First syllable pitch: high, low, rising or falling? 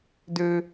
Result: high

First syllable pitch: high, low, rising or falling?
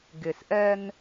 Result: low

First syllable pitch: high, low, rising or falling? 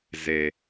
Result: low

